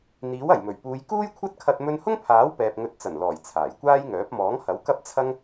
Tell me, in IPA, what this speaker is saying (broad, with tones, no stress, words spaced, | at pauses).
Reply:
n̪iː˨˥wɐ˨˩jmɵ˨˩ɥpuː˨˧j kuː˥jkʷʰɐ˥t̚kʰɐ˧t̚ mɵ˧nhʊ˥ŋpʰaː˨˥w pɛː˨p̚ŋɵ˨˥t̚t͡sɐ˨˩nlɔː˨˩j t͡sʰaː˨˩jkʷaː˥jŋœː˨˥p̚ mɔː˨˥ŋhɐ˨˥w kɐ˥p̚t͡sʰɐ˥ŋ